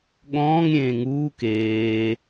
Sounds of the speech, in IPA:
ɠ ɔ̃ː ŋ ɾʲ ẽː ŋ uː k eː

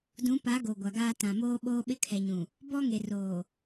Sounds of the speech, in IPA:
d ũ˨˦ p a˨˦ ɡ o˨ ɡʷ a˨ ɡ aː˦ t ã˨ m oː˦ ɓ oː˦ ɓ ɪ˦ kʰ ɛ˨ ɲ ũ˨ | b ɔ˦ ŋ e˨ r oː˨

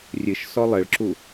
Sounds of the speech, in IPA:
rʲ ɨ ʃ s ɔ lˠ ɘ ɭ ǁ u

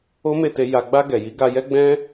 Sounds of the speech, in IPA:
o˦ m e˦˨ t e˧ j a˨ ɡ͡b a˧ ɡ ɛ˨ j i˨˦ ɡ a˧ j ɛ˦ ɡ͡b ɛ̃˦

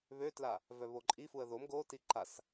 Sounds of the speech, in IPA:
β ø t l a | v œ β o ǃʼ i f u ə̯ ð o m ɡ o t i ǃ a s

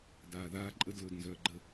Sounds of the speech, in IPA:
d aː ð aː ǃʼ ə d l ɵː d n z œː ɡ͡ǃ ə

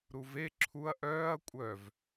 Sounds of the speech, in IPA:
ɾ u v e ǁʰ u ɐ̯ ʔ œː ɐ̯ kʷʼ œ v

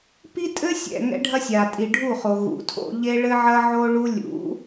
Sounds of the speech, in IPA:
p i˦ tʼ ɘ˦ sʲ ɛ̰˨ ŋ ɛ̰˦ ɖʱ ɐ˦ sʲ a˨ tʼ i˨ ɖʱ u˦˨ χ o˨ ɣ ṵ˨ tʰ o̰˦ ʎ e˦ ɭ ɘ˦ ʕ ɐ˦ ʕ o˦ ɭ u˦ lʲ ṵ˨˦

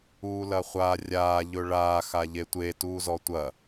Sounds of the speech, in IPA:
uː l ɐ χʷ a rʲ aː ʎ ɵ ɭ aː x a ʎ e tʷ e t uː z ɔ tʷ ɐ

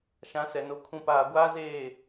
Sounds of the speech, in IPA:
ʃ ã˨˦ s ɛ˨ n o˨˦ kʰ ũ˨ p aː˨ ɡʷ aː˦ z eː˦˨

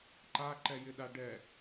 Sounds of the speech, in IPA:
ǃ a ǃ ɛ j ɪ ɗ a ɖ ɛ

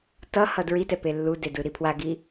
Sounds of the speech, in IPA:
t ʌ h ʌ d ɹ i t ɛ p e lː u d e d ɯ ɾ i pʰ w a ɡ i

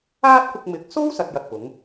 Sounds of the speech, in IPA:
aː˥ t̚ kʷ ɪ˧ k̚ m ɪ˨˥ k̚ s o˥ w s ɐ˨˥ t̚ j ɐ˨ t̚ p ʊ˨˥ ŋ

